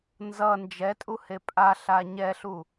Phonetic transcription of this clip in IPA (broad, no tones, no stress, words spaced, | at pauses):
nzʌ nd͡ʒɛtʼuhe pʼaɬa ɲɛɬu